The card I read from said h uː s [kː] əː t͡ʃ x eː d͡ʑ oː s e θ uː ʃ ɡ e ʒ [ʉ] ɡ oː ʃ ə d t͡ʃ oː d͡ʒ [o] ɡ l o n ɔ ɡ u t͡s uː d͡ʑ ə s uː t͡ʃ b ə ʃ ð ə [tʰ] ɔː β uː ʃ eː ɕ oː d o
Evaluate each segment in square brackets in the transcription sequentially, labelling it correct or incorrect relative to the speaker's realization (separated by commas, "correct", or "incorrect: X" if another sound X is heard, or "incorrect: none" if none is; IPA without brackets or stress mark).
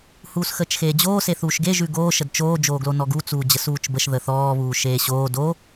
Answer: incorrect: x, correct, incorrect: oː, incorrect: θ